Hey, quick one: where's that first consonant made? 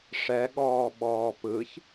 retroflex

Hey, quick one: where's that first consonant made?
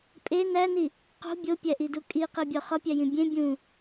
lips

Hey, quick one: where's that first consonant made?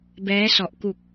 lips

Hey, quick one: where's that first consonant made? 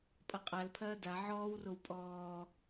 lips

